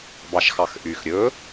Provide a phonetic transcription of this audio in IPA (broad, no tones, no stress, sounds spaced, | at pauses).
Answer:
b ɑ ʃ x ɑ x ʔ y x ɾʲ ɵ